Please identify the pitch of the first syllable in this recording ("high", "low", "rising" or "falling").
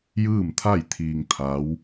falling